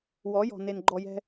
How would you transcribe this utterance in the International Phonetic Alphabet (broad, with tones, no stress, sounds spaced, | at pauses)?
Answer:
w ɔ˨˦ j ɔ̤˨ n e˨ n ɡ͡ǃ ɔ˧ j ɛ̤˦